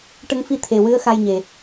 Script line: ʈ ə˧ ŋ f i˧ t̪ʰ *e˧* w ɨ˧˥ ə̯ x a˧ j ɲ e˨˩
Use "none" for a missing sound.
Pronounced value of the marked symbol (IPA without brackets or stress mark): e˨˩